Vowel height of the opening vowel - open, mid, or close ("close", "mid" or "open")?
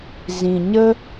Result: close